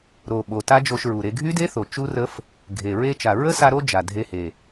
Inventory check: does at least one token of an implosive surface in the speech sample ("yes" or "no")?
yes